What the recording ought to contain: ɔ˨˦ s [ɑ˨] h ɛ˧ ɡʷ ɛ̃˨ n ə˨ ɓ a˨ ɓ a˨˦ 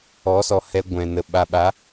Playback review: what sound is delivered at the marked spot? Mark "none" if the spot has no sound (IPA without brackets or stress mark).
ɔ˨